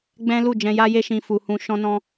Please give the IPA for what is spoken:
ɡ͡b ɛ̃˦ l u˦˨ d͡ʒ ɛ̃˧ j a˦ j e˦ ʃ ĩ˧ f u˧ h ũ˦ ʃ ɔ̃˦ n ɔ̃˦

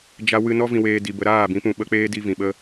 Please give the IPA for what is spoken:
d͡ʒ a˧ w ɨ˧ n ɔ˦ v ĩ˧ w eː˧ d i˨ b ə˧ ɾ aː˦˨ b ĩ˨˦ p ũ˨ ɓ ə˧ k͡p eː˦ d i˧ v ĩ˨ ɓ ə˦

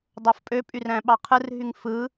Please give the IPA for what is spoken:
dˤ o f pʼ ø pʼ y r æ̃ ɓ ɑ qʰ ɯ r ɦ y ŋ f ɯ

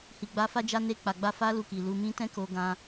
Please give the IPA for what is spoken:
h i˨ ɡ͡b a˧ f a˦ d͡ʒ a˦ n e˧ k͡p a˨ ɡ͡b a˧ f a˦ l u˧ k i˨ l u˧ m ĩ˦ t ɛ̃˦ k o˦ ɡ ã˦

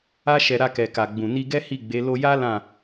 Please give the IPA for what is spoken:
a˦ ʃ ɛ˧ ɾ a˧ k ɛ˨ k a˨ ɡ͡b ũ˨ n i˧ ɡ ɛ˦ h i˦˨ ɡ͡b e˨˦ l o˧ j a˦ l ã˦˨

